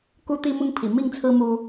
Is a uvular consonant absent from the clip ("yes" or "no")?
yes